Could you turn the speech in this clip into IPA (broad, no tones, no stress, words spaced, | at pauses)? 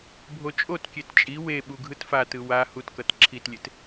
bʱot͡ʃʼotkʲet t͡ʃʼi we ɓuɡʱɯtfatɯ wa hutkʌt ǁʰitlʲet